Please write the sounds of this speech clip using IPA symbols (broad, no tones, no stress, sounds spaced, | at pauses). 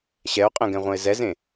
ɕ ɛ o̯ qʼ ɛ̃ ɡ ɛ̃ ʁʷ ɐ̃ e̯ z ɛ z ẽ